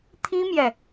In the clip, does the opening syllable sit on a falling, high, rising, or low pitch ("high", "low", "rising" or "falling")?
high